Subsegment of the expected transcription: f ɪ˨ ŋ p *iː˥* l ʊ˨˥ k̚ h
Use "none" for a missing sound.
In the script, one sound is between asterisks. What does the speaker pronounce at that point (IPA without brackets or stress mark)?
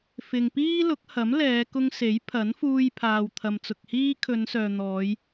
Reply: iː˥